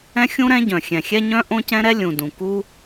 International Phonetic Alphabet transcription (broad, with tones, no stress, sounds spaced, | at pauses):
ɛ̃˥ xʲ ũ˥ ɾ ɛ̃˥ ɟ œ̃˩ xʲ ɛ̃˩ xʲ ɛ˥ ɲ œ̃˥ ʔ õ˥ c ɛ̃˥ ɾ ɛ˥ lʲ ũ˩ d ũ˩ k u˥